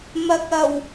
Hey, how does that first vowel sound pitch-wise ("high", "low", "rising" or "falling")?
low